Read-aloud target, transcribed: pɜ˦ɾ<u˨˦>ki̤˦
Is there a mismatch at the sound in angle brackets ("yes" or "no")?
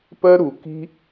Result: yes